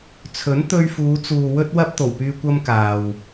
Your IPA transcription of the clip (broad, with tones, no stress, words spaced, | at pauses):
t͡sʰɵ˨˥n t̪ɵ˧ɥfuː˨˧t͡suː˨ wɵ˥t̚wɐ˥p̚ t̪o˨˩wpyː˧ kʷɐ˥mkaː˨w